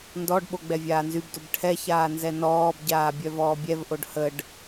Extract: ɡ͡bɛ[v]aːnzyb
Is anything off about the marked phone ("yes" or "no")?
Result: yes